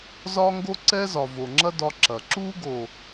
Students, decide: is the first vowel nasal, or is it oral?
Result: oral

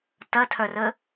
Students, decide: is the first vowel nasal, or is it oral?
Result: oral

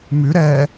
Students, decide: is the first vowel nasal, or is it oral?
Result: oral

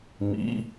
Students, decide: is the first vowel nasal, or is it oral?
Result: oral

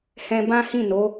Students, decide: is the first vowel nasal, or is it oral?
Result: nasal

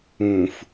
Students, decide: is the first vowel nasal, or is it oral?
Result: nasal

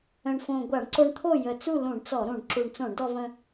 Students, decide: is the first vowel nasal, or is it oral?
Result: nasal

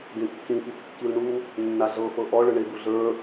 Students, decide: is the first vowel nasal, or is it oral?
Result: nasal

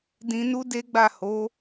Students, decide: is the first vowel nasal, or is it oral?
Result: nasal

